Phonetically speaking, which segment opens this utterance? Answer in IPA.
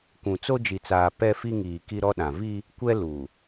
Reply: kʷ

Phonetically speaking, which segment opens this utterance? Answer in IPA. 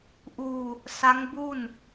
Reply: ʔ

